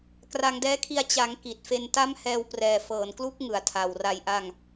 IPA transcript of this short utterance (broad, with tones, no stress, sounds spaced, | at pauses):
k r a˧ ŋ d ɛː˦˥ kʰ i˧ a̯ t͡ɕ a˩˦ ŋ k i˨˩ t̚ f e˧ n t a˦˥ m h ɛː˧ w p r ɛː˨˩ f ɤː˨˩ n k l u˦˥ k̚ ŋ ɯ˨˩ a̯ tʰ a˨˩ w r a˧ j ʔ a˧ ŋ